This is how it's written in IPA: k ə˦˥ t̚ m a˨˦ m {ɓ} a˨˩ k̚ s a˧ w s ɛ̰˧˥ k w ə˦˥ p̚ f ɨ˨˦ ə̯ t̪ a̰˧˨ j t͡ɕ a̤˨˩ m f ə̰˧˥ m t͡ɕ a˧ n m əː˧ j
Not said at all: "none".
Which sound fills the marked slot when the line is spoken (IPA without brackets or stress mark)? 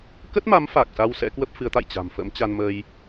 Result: f